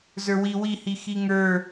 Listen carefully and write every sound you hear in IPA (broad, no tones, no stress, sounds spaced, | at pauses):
z ə˞ w i w i h i x i ŋ ə˞